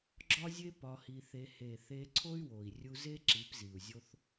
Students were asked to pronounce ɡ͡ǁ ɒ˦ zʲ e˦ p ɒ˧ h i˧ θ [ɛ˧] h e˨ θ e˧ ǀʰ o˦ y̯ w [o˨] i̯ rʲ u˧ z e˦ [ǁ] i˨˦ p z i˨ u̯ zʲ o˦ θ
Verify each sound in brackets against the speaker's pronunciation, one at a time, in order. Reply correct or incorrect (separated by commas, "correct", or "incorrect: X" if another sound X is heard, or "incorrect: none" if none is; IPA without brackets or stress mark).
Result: incorrect: e˧, correct, correct